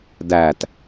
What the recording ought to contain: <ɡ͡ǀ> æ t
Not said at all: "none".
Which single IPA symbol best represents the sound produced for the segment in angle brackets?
d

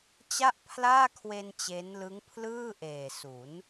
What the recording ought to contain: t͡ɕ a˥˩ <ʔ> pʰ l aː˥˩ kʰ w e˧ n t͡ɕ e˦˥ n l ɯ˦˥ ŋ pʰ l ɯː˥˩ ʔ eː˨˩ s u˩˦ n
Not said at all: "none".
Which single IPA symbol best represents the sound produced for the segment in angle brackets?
ʔ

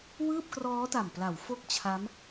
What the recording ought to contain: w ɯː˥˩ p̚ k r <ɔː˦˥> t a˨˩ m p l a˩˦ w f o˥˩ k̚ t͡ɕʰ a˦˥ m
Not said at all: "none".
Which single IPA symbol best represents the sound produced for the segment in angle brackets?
ɔː˦˥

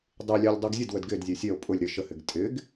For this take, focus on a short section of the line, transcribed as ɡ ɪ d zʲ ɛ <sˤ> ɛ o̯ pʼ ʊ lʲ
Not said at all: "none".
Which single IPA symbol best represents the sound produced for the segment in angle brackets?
sʲ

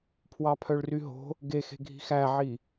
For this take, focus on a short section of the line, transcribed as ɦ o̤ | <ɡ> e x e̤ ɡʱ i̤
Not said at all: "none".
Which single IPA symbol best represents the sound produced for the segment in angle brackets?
ɡ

